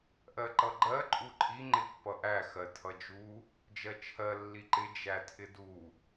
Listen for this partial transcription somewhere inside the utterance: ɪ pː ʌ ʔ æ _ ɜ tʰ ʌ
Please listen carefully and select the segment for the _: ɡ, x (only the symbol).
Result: x